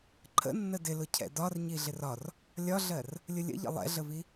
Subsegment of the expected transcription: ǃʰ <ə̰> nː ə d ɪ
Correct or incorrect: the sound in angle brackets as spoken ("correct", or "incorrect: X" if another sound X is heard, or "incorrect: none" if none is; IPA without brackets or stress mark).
correct